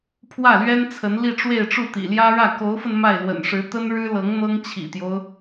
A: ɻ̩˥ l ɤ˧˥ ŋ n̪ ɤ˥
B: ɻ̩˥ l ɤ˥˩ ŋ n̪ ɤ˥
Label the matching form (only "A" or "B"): A